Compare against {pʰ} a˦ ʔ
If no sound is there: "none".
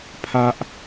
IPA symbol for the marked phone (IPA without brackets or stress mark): pʰ